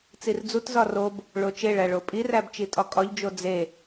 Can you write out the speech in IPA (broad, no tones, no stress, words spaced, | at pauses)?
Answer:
t͡sird͡zutzɒ rob | ɭot͡ʃeɭæ ɭopʼiræb t͡ʃitʼɒkʼɒʎd͡ʒo d͡ze